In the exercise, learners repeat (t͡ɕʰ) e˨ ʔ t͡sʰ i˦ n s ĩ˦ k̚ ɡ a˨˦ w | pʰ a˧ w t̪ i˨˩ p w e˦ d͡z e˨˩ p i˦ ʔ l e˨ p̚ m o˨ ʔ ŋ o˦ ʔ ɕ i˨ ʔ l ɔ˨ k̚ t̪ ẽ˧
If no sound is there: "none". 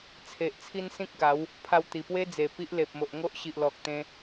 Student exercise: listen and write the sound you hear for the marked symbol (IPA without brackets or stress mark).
t͡sʰ